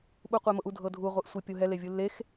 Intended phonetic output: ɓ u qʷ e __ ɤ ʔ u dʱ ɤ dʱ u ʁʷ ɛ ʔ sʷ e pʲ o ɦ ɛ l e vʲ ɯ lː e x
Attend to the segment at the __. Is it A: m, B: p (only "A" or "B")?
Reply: A